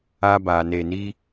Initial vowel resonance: oral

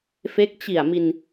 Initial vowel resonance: oral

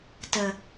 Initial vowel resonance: oral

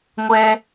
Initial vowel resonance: oral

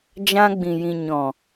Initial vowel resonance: nasal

